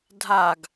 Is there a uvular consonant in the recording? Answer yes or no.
no